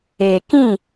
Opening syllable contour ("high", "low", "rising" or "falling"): low